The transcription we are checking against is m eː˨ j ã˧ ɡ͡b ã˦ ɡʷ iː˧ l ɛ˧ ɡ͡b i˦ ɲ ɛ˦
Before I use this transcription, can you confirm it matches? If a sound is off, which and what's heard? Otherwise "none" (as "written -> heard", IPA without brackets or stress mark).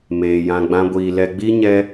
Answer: none